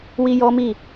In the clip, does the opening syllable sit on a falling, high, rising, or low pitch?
high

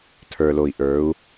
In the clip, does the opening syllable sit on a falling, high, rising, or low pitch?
low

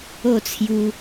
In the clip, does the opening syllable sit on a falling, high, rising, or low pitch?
falling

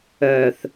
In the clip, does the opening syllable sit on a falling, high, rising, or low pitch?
low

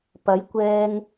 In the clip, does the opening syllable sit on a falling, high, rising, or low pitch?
rising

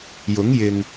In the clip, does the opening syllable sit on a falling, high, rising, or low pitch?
rising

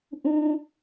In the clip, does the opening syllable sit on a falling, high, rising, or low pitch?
high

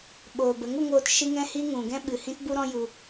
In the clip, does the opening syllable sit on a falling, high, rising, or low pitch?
low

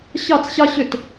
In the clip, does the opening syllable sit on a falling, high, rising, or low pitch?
falling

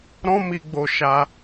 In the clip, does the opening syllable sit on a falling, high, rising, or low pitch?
high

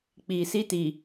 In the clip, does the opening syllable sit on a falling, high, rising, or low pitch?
low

